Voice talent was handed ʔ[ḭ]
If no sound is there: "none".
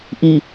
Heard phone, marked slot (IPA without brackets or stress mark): i